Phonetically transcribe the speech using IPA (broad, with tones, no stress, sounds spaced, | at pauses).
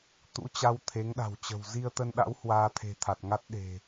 t̪ ṵ˧˥ t͡ɕ a˧ w t̪ʰ e˨˦ ŋ ɗ a̤˨˩ w t͡ɕ ə̤˨˩ w z i˧ ə̯ t̪ ə˧ n ɗ a̰˧˥ w h w aː˧ t̪ʰ e̤˨˩ t̪ʰ a˨˩ t̚ ŋ a˦˥ t̚ ɗ e̤˨˩